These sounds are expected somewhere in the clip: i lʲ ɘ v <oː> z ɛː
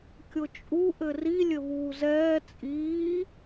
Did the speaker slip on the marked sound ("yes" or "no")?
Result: yes